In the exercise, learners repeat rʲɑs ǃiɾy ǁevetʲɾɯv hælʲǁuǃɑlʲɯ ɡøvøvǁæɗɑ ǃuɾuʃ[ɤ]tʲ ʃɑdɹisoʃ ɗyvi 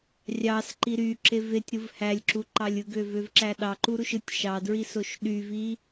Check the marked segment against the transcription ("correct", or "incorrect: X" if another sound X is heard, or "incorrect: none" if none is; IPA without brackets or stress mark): incorrect: ɯ